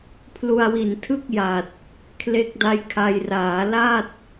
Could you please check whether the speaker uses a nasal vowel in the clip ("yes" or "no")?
no